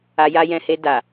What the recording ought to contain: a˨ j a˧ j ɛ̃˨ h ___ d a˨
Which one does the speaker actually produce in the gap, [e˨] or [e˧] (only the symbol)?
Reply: e˧